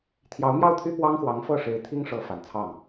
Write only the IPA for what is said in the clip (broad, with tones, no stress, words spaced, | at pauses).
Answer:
t̪ʰjɑ˧˥ʊ̯mjɑ˥˩ʊ̯t̪ʰy˥ pwɑ˥ŋxwɑ˧˥ŋfɤ˥˩ ʂe˧˥ɪ̯t̪ʰi˥ŋ ʂɤ˧˥ fa˨˩nt͡sʰɑ˥˩ŋ